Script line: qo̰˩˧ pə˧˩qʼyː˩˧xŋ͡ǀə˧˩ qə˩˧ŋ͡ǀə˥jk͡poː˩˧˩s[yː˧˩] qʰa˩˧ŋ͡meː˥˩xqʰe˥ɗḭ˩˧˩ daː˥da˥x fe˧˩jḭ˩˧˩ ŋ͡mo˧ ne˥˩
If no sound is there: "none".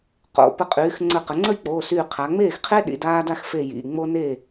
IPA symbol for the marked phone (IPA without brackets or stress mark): yː˧˩